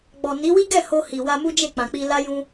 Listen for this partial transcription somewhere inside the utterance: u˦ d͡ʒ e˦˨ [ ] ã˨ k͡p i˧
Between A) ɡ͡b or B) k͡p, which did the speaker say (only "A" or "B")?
B